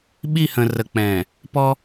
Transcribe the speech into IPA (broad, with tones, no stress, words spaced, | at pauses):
ɓi˦˨hə̃˨rə˨k͡pɛ̃ː˨ | pɔ˦